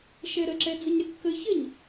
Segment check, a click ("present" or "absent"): present